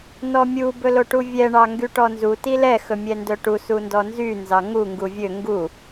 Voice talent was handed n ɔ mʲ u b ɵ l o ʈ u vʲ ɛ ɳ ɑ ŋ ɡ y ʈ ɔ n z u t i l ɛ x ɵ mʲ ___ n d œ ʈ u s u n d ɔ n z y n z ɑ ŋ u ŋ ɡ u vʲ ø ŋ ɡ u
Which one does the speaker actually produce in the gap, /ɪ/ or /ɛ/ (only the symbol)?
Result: ɛ